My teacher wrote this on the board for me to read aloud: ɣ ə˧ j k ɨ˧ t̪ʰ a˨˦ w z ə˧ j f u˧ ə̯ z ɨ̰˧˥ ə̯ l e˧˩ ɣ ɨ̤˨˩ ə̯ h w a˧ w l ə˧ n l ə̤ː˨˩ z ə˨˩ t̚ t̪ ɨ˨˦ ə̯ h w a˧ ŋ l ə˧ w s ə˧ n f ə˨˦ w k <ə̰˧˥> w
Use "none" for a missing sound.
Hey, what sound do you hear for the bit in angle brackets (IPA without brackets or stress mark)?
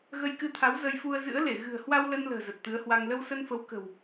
ə̤˨˩